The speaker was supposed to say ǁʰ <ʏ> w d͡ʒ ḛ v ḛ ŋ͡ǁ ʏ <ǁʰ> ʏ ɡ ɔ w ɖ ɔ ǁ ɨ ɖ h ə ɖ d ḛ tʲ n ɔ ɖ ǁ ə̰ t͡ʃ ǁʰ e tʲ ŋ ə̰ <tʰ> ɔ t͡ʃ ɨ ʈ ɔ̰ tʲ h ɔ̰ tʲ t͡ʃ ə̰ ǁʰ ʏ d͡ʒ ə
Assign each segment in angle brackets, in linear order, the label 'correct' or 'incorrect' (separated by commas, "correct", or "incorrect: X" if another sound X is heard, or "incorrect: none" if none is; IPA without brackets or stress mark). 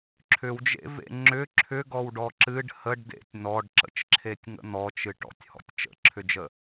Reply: correct, correct, incorrect: n̪